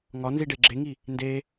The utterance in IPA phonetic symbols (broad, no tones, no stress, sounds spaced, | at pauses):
ŋ ɒ n z i ɖ e ɡ͡ǁ e ŋ i | n d e